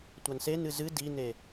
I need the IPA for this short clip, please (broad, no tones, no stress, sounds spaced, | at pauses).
tʷ a n s e n ɨ z ɨ d i n e